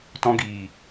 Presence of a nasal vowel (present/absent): present